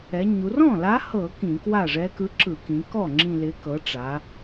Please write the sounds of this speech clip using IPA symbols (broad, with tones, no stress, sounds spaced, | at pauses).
ɛ˩˧ ɲ u˩˧ r ɔ̃˥˩ l a˧˥ h ɤ˧˩˧ k ĩ˧˩˧ k w a˥˩ ʐ ɛ˧˥ k ɯ˧˥ ǁ ɯ˧˩˧ k ĩ˩˧ k ɔ˥˩ ŋ͡ǁ ĩ˨˩ l ɪ˩˧ k ɤ˩˧ ʈ͡ʂ a˩˧